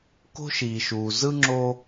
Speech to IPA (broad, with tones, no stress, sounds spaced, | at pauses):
k o̤˥ ʃ iː˩ ʃ uː˩ z ɯ˥ ŋ͡ǁ oː˥